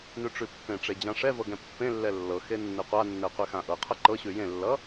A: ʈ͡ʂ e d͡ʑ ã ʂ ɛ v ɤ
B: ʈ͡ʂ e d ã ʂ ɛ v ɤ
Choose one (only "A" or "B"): A